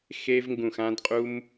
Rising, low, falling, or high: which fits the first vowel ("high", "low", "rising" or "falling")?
high